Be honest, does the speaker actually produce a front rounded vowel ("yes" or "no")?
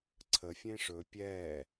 no